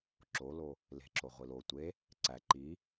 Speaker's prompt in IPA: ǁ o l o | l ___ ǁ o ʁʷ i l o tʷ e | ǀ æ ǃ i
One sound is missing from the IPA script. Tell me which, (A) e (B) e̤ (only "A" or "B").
B